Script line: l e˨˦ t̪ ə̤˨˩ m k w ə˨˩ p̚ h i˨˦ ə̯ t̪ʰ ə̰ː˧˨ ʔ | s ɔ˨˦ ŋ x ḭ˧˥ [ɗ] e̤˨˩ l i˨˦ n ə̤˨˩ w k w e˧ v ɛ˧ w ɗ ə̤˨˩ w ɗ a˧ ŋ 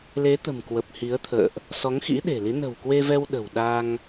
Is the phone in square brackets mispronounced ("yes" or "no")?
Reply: no